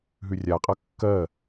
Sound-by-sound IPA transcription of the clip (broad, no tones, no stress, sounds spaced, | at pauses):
ɦ ʉ rʲ a qʼ ɐ kː ɜ